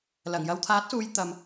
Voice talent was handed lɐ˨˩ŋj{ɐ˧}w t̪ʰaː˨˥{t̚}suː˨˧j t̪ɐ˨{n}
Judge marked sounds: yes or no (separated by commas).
yes, yes, no